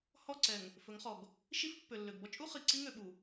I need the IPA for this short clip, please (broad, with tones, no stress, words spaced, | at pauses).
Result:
hɔ˦˨ǀɛ˨ŋ | fɵ˨˦ŋχɔ˨ɡ | ʃi˦fpːø˨lːø˨ɡ bɔ˦t͡ʃʼu˦ χi˨ ǀi˦ŋø˨ɓu˨